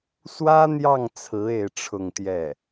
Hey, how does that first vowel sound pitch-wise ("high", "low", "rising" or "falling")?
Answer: high